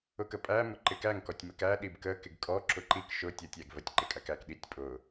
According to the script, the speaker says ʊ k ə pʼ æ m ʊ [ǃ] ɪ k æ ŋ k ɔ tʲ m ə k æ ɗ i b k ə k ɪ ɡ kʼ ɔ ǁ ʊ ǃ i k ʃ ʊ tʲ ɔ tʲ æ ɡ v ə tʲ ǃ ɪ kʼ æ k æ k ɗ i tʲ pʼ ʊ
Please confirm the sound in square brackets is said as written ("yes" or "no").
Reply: yes